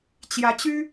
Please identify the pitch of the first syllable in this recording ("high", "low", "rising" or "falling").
rising